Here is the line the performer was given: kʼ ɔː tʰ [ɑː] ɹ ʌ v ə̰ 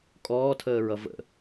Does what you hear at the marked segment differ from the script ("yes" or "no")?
yes